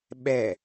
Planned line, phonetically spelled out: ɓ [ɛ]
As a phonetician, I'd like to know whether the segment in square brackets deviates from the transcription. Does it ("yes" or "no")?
no